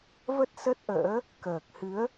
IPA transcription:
v ə˦˥ t̚ s ə˦˥ t̚ ʔ ə̰ː˧˥ | k əː˨˩ k̚ h ɨ˨˦ ə̯

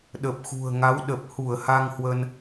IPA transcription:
ɗ ə˨˩ p̚ x ṳ˨˩ ə̯ ŋ a˨˦ w ɗ ə˨˩ p̚ h u˧˩ ə̯ h a˧ ŋ h w ə˧ n

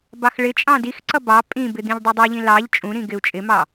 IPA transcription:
b ɑ x ɭ ɪ t͡ʃʼ ɑ̃ d i x ǀ ʌ b ɑ pʼ ĩ b ɪ d̪ ĩ ʎ dˤ u dˤ u ʎ ĩ l ɑ ʎ t͡ʃʼ ũ ɾ ĩ ɡ ɪ u̯ t͡ʃʼ ɪ m ɑ

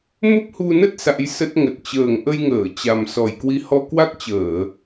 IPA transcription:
m ə˦˥ p̚ h u˧ n ə˦˥ t̚ s a̰˧˥ j s ə˦˥ t̚ ŋ ə˨˩ t̚ t͡ɕ əː˨˩ ŋ ʔ ə˧ j ŋ əː˧˩ t͡ɕ a˨˩ m s ɔ˨˩ j k w i˨˦ h ɔ˧ k w a˦˥ k̚ t͡ɕ əː˧˩˨

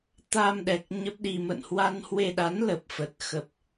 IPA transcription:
t̪ a˧ m ɗ ɛ˨˩ k̚ ɲ ə˦˥ p̚ ɗ i˧ m ə̰˧˨ n h w a˧ n h w e˧ ɗ a˨˦ n l ə˨˩ p̚ f ə˨˩ t̚ x ə˨˩ p̚

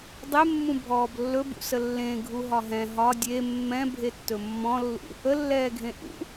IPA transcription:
dˤ e mː ũ bʱ ɔː b lː ɵ b ṵ s ə lː ẽ ɡʱ u ɦ ɒ ɦ ɛ̃ ɦ ɒ dʲ e mː ɛ̃ bʱ e tː ɵ mː ɔ̃ lː ṵ | ə lː ɛː ɡʱ ẽ ʔ ṵ

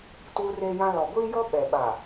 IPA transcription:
t uː˦ r eː˦ j ã˦ l ɔ˨ ɡʷ iː˦ j ɔ˦ ɓ ɛ˨ ɓ a˨

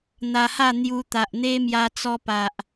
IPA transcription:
n̪ a˧ h a˥˧ n̪ j u˧ t̪ a˨ ʔ n̪ e˦ m j a˧ t͡s ɔ˧ p a˨ ʔ

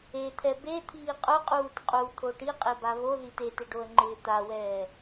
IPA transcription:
e t̪ʰ ɛ b e t̪ʰ iː qʼ ʊ qʼ uː t qʼ u t̪ʰ o ʈ i qʼ e b a β o ð i t e t ɪ ɖ o ə̯ ŋ͡ǃ ɪː t̪ a w ɛː

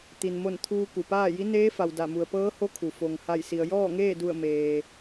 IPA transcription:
t̪ i˩ n m o˧˩ n t̪ʰ uː˧ k u˩ p aː˥˨ j i˧˥ n eː˧˥ f a˩ w d a˧˩ m u˩ ə̯ p ɤː˧˥ h o˧˥ kʰ u˩ f o˩ ŋ h a˧˩ j s i˩ ə̯ j ɔː˥˨ ŋ eː˥˨ d u˧˩ ə̯ m eː˩

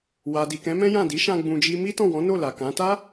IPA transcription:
w a˨ d i˨ k ɛ̃˨˦ m ɛ̃˦ j ã˦˨ d i˨˦ ʃ ã˧ ɡ͡b ũ˧ d͡ʒ i˦ m i˦ t ɔ̃˦˨ w ɔ̃˨˦ n o˦˨ l a˨ k ã˨˦ t a˦

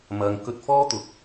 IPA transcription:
m ɐ˨ ŋ k ɵ˧ t̚ f ɔː˥ t̪ ʊ˨˥ k̚

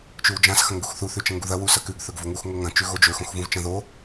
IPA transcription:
t͡ʃ ʉ w d͡ʒ ã s x ɐ̃ ŋ ɡ u x θ u θ ʉ t͡ʃ ɐ̃ ŋ ɡ u ð ɐ w u s ɐ k ʉ ɡ θ ɵ ɡ v o ŋ u x ŋ o ŋ ɐ̃ t͡ʃ ʉ ɣ o d͡ʒ ɵ x õ x v ũ v t͡ʃ ɐ̃ ð o

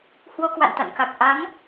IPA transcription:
h w o˧ k w a̰˧˨ n t̪ a̰˧˨ n k a˨˩ k̚ ʔ a˨˦ ŋ

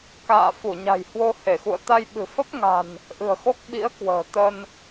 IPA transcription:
k a̰ː˧˨ f u˧˩ ɲ a̤˨˩ j h w o˧ h e˧˩ x ṵ˧˨ ə̯ t̪ a˧ j ɓ ɨ̤˨˩ f ə˦˥ p̚ ŋ a̤˨˩ n | ʔ ɨ̤˨˩ ə̯ x o˦˥ k̚ ɓ ḭ˧˥ ə̯ k w ə̤ː˨˩ t̪ ə˧ n

